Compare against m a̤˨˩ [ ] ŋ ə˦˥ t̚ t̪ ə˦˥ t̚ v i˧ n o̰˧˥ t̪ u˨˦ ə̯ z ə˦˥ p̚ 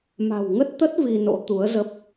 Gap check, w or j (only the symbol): w